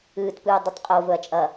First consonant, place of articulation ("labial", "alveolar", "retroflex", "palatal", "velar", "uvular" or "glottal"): alveolar